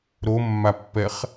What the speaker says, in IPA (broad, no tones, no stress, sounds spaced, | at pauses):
ɾ o mː a pː ɛ χ